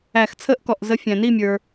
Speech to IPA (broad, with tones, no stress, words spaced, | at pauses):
æ˧˩˧xt͡sʰəː˥ʔkɔ˩˧˩ʔ zə˨˥fʲæ̃˩ni˥˨mʲə˞˩